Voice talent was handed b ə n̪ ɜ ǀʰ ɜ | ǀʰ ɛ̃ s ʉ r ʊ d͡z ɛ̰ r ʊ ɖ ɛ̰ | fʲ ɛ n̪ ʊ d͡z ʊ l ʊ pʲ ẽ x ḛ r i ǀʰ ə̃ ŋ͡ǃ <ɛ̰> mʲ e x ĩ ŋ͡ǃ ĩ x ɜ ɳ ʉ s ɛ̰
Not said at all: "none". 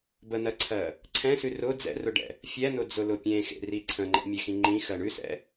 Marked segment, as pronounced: ɛ̰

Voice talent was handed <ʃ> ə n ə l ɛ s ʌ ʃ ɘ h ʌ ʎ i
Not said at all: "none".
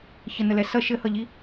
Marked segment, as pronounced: ç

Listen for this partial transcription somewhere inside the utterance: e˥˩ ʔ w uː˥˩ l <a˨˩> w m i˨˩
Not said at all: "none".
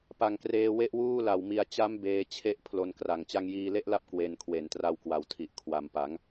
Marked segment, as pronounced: a˨˩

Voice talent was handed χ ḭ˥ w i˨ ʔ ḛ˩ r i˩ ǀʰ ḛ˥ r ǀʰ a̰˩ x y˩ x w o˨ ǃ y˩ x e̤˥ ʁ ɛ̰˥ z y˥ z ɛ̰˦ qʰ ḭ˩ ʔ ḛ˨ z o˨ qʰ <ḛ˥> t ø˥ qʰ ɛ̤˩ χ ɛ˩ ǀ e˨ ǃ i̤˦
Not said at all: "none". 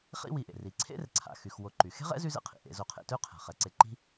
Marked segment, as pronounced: ḛ˨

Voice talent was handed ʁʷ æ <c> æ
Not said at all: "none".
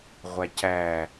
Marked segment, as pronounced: c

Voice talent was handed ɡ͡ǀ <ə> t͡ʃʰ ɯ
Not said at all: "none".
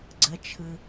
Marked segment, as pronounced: ə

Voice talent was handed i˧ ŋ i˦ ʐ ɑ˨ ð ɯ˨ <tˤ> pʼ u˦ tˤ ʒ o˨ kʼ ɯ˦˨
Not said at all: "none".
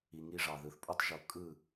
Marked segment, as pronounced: θ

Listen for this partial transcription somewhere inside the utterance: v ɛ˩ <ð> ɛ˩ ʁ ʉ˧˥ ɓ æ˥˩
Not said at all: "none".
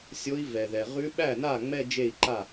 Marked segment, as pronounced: ð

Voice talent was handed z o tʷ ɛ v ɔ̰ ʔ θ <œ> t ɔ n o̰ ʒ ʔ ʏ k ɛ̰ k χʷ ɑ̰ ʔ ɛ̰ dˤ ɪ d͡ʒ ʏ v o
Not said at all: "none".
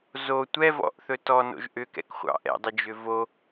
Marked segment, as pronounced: ɵ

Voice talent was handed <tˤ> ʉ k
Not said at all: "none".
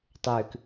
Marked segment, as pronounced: tˤ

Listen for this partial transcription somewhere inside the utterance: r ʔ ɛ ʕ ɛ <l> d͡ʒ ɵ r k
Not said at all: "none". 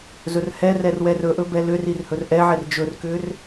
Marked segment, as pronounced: r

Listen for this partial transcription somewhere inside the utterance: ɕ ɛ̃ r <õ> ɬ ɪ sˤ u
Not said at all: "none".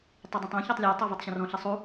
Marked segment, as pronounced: ɔ̃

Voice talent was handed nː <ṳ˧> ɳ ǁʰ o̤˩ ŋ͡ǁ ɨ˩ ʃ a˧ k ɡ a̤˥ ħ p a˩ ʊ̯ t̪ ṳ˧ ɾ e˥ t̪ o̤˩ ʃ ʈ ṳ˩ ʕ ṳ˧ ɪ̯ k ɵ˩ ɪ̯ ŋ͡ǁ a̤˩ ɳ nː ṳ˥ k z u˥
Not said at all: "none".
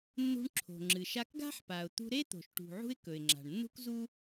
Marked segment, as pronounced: ṳ˧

